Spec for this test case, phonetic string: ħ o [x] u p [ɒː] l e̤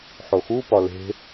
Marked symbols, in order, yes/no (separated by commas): yes, no